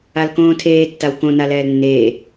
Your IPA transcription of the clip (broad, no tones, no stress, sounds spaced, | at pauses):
a l k õː tʰ eː tː a w k õ n a l ɛː l nː eː